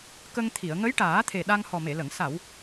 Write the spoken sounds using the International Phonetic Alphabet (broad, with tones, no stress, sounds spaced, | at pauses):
k ə˧ ŋ t̪ʰ i˨˩˨ ə̯ ŋ ə˧˥ j ʈ aː˨˩˦ t̪ʰ e˨˩ ɗ a˧ ŋ h ɔ˨˩ m e˨˩˨ l ə˨˩˨ ŋ s a˨˩˨ w